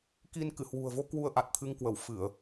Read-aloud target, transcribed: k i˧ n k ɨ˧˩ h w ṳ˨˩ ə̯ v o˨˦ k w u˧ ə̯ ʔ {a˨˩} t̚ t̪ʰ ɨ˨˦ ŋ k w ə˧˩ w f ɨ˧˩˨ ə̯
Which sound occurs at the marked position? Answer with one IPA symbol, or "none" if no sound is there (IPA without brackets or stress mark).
a˨˩